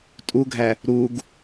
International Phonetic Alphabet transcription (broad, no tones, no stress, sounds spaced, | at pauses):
tʼ u ɡʱ æ | ɾ u ɡ